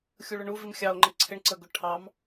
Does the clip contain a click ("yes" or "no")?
yes